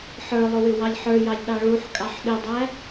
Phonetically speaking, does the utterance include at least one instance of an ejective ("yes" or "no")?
yes